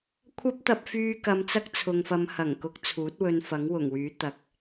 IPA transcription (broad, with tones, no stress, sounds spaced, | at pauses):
kʷʰ ɐ˥ p̚ t̪ ɐ˧ p̚ f yː˧ k ɐ˧ m t͡s ɐ˥ k̚ t͡sʰ ʊ˨ ŋ f ɐ˧ m h ɐ˨˩ ŋ k ʊ˨˥ k̚ t͡sʰ uː˨˥ t̚ w ɵ˧ n f ɐ˨˥ ŋ w ʊ˨˩ ŋ w yː˨˥ t̪ ɐ˨ k̚